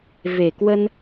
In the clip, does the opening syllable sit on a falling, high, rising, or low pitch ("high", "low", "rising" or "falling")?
low